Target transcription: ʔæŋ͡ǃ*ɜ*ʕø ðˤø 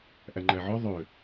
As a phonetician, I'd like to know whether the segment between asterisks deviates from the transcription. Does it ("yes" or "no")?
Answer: yes